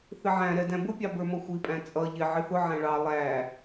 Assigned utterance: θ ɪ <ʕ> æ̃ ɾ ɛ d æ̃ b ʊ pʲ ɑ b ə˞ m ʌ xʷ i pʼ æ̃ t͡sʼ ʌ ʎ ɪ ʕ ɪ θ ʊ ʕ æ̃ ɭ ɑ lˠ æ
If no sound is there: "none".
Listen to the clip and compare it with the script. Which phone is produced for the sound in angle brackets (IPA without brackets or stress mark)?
ʕ